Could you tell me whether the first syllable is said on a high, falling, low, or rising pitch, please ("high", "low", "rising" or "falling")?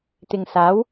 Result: low